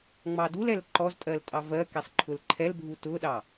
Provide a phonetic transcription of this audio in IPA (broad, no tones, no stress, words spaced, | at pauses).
ŋ͡mɑdulɛl ǃɔztʼɜl tʼɑvɜkɛsˤ ǃʰʊlǃʰɛlbʱu tʊɗɑ